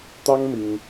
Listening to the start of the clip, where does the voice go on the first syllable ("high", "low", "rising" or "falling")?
high